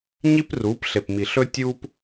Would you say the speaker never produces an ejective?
yes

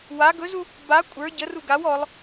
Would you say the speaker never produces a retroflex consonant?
yes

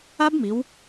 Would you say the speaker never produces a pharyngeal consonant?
yes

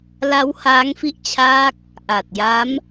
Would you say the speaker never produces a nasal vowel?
yes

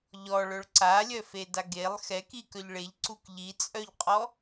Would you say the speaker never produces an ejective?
no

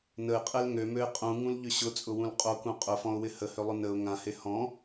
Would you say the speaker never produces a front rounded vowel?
no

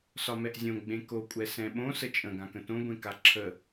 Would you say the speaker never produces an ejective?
no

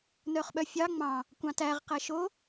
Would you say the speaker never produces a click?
yes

